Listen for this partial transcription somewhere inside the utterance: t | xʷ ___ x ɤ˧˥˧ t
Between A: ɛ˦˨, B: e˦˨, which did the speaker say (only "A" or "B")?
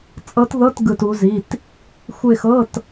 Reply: B